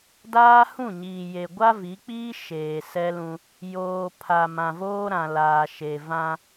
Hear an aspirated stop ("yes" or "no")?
yes